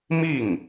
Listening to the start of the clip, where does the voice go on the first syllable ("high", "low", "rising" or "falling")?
falling